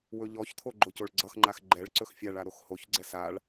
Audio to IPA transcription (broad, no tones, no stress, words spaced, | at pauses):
wɵʎɔçt̪ʰo ɡ͡ǃocoɭɡ͡ǀʌxŋ͡ǃax ɡ͡ǃɛɭǀɵx fʲaɭa ɾoxhoçɡ͡ǀɛ saɭ